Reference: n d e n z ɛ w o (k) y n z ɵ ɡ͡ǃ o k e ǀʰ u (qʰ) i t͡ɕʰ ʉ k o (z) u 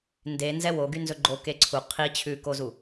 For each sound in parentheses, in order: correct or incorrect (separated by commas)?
incorrect, correct, correct